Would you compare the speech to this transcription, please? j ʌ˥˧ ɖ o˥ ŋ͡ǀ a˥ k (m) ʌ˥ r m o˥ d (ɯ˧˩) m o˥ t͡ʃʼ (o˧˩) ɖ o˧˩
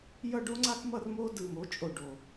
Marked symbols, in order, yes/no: yes, yes, yes

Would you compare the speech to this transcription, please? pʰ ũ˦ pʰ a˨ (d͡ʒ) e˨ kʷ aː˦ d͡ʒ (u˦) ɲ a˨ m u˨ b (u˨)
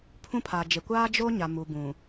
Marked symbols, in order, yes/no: yes, no, no

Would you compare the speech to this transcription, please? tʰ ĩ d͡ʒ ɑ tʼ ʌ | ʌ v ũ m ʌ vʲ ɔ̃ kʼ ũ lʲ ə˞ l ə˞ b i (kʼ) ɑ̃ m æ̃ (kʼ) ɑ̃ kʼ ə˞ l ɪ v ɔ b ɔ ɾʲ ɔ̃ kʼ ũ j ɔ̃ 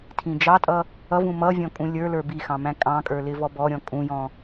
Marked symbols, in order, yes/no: no, yes

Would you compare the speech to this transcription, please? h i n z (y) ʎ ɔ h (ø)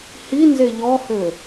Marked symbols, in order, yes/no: no, yes

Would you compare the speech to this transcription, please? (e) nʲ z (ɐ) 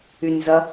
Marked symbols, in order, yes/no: no, yes

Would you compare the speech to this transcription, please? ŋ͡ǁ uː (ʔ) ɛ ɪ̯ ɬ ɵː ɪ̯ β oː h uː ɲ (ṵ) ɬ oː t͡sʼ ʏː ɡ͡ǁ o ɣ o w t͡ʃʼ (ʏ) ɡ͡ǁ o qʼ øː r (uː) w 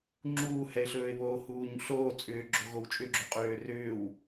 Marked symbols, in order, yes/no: no, yes, yes, no

